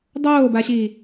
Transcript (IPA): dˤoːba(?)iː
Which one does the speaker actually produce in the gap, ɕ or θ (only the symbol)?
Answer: ɕ